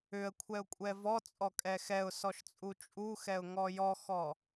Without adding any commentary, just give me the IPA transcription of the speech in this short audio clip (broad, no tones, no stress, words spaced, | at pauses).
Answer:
ʏə̯ kʷʰɛʊ̯kʷʼɛvɔ t͡sʼɔkʼɛxɛʊ̯ sɔʃt͡sʼut͡ʃʼuxɛʊ̯ ŋɔjɔxɔ